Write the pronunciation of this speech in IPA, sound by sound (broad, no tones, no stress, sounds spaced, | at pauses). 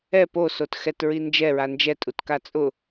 ɛ p o s o t x ɛ t ɹ i n d͡ʒ ɛ ɹ a n d͡ʒ ɛ tʼ u t k a t͡sʼ ʊ